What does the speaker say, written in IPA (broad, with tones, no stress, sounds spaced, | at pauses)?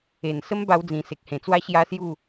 e˨˩ n s ə˦ m b a˧ w d͡z ĩ˨˩ s e˨ k̚ h ẽ˨˩ t͡s w a˦ ɕ j a˦ s j u˥˧